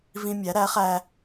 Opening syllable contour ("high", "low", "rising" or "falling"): high